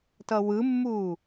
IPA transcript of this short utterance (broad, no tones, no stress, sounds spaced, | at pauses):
t ʌ w ɯ mː u